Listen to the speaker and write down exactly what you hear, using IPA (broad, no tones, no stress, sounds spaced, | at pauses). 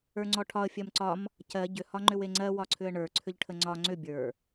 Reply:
ə˞ ŋ͡ǀ ɔ ʈʰ ɒ ə̯ fʲ ɜ m ǀ ɒ m | c ɜ ɟ ʏ h ɒ ŋ͡ǃ ʏ w e ŋ͡ǀ ɜ w ɒ ǀʰ ʏ ə̯ ɳ ə˞ ǀʰ ʏ ʎ ʈʰ ə ŋ͡ǀ ɒ ŋ͡ǀ ʏ bʲ ə˞